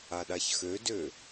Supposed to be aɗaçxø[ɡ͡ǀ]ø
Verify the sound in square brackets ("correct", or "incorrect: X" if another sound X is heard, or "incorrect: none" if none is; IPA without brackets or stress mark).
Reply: incorrect: d